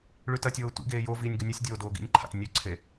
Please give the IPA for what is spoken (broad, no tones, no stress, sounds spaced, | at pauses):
ɭ ʉ t ɐ tʲ oː tʷ ḭ ɡ eː j o v iː nʲ ɡ ɵ nʲ ɨ sʲ dʲ oː d oː ɡ ḭ nʲ ǃʰ a̰ t nʲ ʉ ǀʰ e